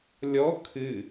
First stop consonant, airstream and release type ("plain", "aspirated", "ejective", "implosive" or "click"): aspirated